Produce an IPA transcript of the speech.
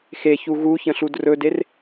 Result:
xeçu ɣuçə̃ɬud rɵder

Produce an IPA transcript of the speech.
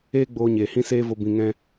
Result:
eː˦ɡ͡boː˧ɲeː˨ hĩ˦seː˦vo˧ bĩ˧ŋɛ̃˦

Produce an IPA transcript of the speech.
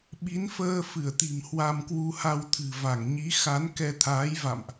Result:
ɓi˨˦nfəː˧fɨ˧˩ə̯t̪i̤˨˩m hwa˧mkwu˧ha˧w t̪ʰɨ̤˨˩ va˧˩ŋɲi˨˦ xa˨˦nkɛ˧t̪ʰaː˨˦jva̰˧˨mʔ

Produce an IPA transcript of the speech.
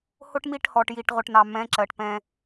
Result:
hʊ˦ʈmi˦˨ʈhɔ˨ʈ ji˨ʈʁʊ˨ʈnɑ˨ mɛ̃˨˦ ǁɜ˨ʈpɛ̃˦

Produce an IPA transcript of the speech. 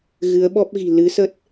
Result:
ɣɨ˨˦ə̯ɓɔ˦˥p̚ɣi̤˨˩ lɨ˨˦sə˦˥t̚

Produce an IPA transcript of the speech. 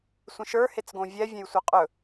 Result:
sʷə̃ʃə˞ het͡sɡõvʲɛ vʲɛ̃jsʷɛqʼɵ

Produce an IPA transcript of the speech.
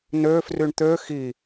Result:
nø fryɳt̪ø xi

